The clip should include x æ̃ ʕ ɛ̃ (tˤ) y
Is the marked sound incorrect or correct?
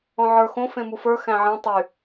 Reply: correct